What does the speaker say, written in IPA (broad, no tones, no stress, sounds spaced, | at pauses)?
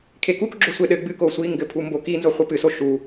kʰ e k u k ɡ͡ǁ o sʷ e ɗ ɘ ɡ͡b ɨ k o sʷ i ŋ ɡ ɘ pʰ u m b o k i n z o χʷ ɨ p ɨ s o ʃ u